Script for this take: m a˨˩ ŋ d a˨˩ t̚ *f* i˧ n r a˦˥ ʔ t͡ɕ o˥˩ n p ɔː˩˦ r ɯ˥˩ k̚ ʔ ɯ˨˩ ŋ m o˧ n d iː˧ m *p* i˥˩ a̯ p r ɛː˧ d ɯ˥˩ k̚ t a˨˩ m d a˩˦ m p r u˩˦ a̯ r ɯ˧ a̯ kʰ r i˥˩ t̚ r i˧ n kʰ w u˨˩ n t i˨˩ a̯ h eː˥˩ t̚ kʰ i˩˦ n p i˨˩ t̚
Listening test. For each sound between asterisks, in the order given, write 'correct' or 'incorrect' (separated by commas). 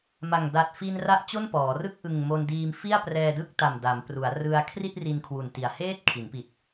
correct, incorrect